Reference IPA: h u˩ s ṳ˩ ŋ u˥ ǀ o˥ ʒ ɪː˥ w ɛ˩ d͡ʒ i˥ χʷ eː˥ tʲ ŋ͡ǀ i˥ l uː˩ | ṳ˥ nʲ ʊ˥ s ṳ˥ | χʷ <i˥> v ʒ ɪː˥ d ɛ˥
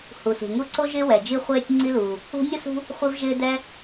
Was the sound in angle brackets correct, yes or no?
yes